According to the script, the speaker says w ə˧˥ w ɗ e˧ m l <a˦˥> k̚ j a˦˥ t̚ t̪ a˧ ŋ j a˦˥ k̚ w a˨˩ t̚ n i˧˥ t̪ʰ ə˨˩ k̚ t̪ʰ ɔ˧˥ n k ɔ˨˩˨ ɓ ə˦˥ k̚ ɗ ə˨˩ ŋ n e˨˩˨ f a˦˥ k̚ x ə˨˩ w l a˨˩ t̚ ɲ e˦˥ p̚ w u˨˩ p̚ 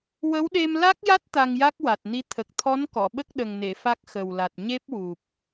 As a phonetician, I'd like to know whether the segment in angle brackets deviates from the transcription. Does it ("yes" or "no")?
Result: no